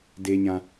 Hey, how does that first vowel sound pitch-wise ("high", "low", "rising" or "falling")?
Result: low